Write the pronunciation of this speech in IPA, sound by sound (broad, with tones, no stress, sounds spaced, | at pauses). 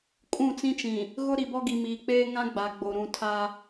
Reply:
kʼ ũ˦˨ t͡s ĩ˦ t͡ʃ ĩ˨ | ɣ ʊ˦ ɾ i˨ b ɔ˦ ɡ i˨ m iː˨ k͡p eː˦ ŋ ã˦ ɡ͡b a˨ ɡ͡b o˨ ɾ ũ˨ tʰ a˦